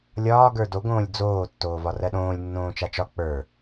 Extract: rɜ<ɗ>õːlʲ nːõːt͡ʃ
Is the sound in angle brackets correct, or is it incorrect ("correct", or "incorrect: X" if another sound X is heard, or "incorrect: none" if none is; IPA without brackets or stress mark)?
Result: correct